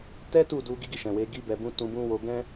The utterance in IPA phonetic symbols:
t ɛ˦ t u˦˨ d u˧ ɡ i˦ ɡ i˦˨ ʃ ɛ̃˨ w e˨˦ ɡ i˧ b ɛ˨ b ũ˧ t ũ˧ b ũ˦ w o˧ ɡ ɛ̃˦

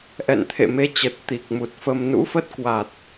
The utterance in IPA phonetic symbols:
ʔ ɛ̰˧˨ n t̪ʰ ḛ˧˨ m e˧ t͡ɕ ə˨˩ t̚ t̪ i˨˩ k̚ m u˨˩ t̚ f ə˧ m n ṵ˧˥ f ə˦˥ t̚ k w a˨˩ t̚

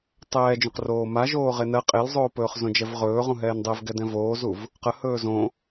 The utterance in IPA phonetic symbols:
tˤ ɛː d͡ʒ õ q r oː m a ʒ oː ʁ e n ɜ qʼ e l zˤ oː p ɵː χ z õ d͡ʒ ɛ v ʁ ɵː ʁ ũ ɦ ɛː n dˤ e v ɡ ɛ d ɛ̃ v oː z u v | q ə h ɵː z õ

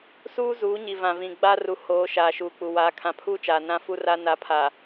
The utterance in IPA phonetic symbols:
s uː˦ z uː˨˦ ɲ i˨ v ã˨ v ĩ˨ ɡ͡b a˦ r u˨ h oː˨˦ ʃ aː˨ ʃ uː˨ k͡p u˨ w aː˨˦ kʰ ã˨ pʰ uː˦ t͡ʃ aː˨ n ã˦ f u˦ r a˦ n a˨˦ pʰ a˨

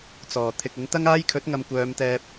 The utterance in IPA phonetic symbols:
t͡s ɔː˨˩ t̪ʰ ɪ˨ k̚ ɪ˨˥ ŋ t̪ ɐ˥ ŋ aː˥ j kʰ ɵ˨˥ t̚ ŋ ɐ˨ m kʷ œː˨˧ m t̪ ɛː˧ p̚

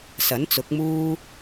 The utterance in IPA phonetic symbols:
s ɐ˨˥ n t͡s ʊ˨˥ k̚ m uː˥

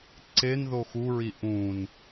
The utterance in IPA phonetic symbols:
ǀ e n ð o x u ɹ i ʔ ũ n

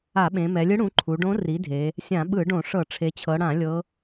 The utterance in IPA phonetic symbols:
a˧˩˧ ɓ ẽ˩˧ m ɛ˩˧ lʲ ɯ˧˥ ɽ ũ˩˥ ǃʰ u˩˧ ɖ õ˧˥ r i˩˥ dʱ e˩˧ | sʲ ã˧˩˧ ɓ ɯ˧˩˧ ɖ õ˧˩˧ ʂ ɤ˧˩˧ ʈ͡ʂʰ e˩˧ t͡ɕʰ ɤ˩˧ ɽ ã˧˩˧ lʲ ɤ˧˥

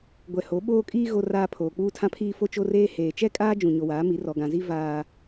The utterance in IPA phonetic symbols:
ɡʷ ɛ˨ h o˨˦ ɓ oː˦ kʼ iː˦ ɣ o˨ r aː˨ pʰ oː˨ k͡p uː˦ tʰ ã˦ pʰ iː˦ f o˦ t͡ʃ o˦ r eː˦ h eː˨ t͡ʃ ɛ˦ kʼ aː˦ d͡ʒ ũ˨ ɲ o˨ w aː˨˦ m i˨˦ r ɔ˨ ɡ ã˨ z i˦ v aː˦

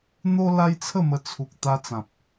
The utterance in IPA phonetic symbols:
n̪ o˦ l a˦ j t͡sʰ ə˥˧ m ə˧ t͡sʰ u˨ k̚ t̪ a˧ t͡s ã˨ p̚

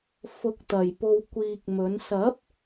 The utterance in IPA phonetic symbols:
f ʊ˨˥ k̚ t̪ ɐ˨˩ j p o˧ w kʷ iː˧ k̚ m ɵ˨˥ n s ɐ˨˥ p̚

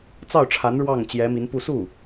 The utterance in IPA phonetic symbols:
t͡s ɑ˥˩ ʊ̯ ʈ͡ʂʰ a˧˥ n ɻ w ɑ˥˩ ŋ t͡ɕ j ɛ˧˥ m i˧˥ n p u˥˧ s u˥˩

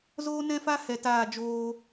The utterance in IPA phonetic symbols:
z oː˦ n ɛ̃˦ f a˦ h ɛ˧ t aː˦˨ d͡ʒ oː˧

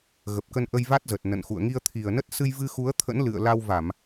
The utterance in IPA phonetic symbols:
ɣ ə˨˩ p̚ k ə˧ n ʔ ə˧ j v a˦˥ t̚ z ə˨˩ t̚ n ə̰˧˨ n x ṵ˧˨ ə̯ ŋ i˧ ə̯ t̪ʰ i˨˩ ə̯ n ə˦˥ t̚ s ɨ˧ j v ɨ˧ x u˨˦ ə̯ t̪ʰ ə̰˧˥ n l ɨ̰˧˨ ə̯ l a˧ w v a˧˩˨ m

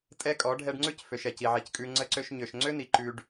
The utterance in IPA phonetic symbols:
tʼ ɛ˦ kʼ ɔ˨˦ ɖʱ ɛ˧ ɖ ŋ͡ǀ ʉ˦ c f ø˨ ʃ ɛ˨ c i˨ ʕ i˨ c kʼ ʉ˧ ŋ͡ǀ ə˧ ǀ ø˧ ʃ ɲ ø˨ ʃ ŋ͡ǀ ø˦ n i˨ ǃ ʉ˧ ɖ

